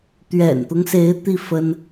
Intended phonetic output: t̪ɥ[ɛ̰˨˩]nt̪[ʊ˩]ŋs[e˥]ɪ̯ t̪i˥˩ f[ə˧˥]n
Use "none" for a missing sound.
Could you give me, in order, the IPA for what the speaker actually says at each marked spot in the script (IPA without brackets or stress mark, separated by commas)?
ɛ̰˨˩, ʊ˦, e˧˥, ə˥